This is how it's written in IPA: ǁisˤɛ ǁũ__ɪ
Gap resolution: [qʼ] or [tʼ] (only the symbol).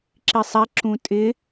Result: tʼ